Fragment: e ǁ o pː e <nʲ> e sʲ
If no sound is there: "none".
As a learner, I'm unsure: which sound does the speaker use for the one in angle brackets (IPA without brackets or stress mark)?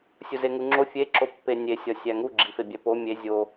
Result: nʲ